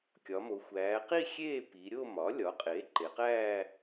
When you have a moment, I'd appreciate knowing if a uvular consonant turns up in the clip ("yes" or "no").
yes